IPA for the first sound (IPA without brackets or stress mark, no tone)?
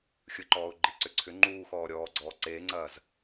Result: xʲ